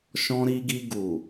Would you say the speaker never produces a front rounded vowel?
yes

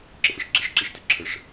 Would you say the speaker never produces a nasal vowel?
yes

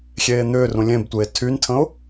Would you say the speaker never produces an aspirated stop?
no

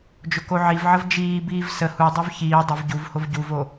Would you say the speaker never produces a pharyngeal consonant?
no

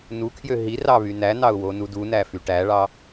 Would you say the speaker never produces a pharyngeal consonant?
yes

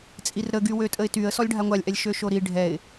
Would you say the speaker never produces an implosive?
yes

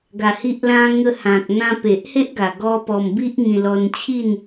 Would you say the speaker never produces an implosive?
yes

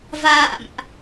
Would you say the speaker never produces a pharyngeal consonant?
yes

